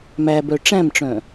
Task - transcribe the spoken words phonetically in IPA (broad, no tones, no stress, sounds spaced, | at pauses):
m æ b œ ʈ͡ʂ æ̃ m ʈ͡ʂ œ̃